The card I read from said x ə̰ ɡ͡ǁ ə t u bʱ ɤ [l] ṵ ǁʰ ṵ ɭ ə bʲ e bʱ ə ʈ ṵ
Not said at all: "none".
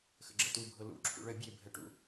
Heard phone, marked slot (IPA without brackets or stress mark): l